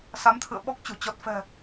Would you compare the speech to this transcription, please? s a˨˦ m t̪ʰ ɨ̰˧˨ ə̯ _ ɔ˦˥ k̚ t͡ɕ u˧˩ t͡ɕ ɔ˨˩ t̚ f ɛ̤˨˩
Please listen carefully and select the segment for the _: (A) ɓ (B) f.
A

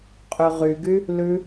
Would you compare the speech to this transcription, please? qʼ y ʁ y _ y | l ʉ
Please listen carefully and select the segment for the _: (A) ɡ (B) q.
A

